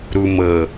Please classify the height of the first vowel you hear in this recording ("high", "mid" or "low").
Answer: high